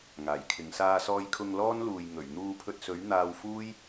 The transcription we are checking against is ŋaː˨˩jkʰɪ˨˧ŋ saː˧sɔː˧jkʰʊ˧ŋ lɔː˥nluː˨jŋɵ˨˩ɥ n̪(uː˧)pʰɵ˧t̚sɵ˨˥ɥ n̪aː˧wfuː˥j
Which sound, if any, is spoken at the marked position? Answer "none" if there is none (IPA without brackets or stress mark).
uː˧